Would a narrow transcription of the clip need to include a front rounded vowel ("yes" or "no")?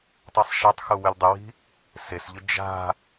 yes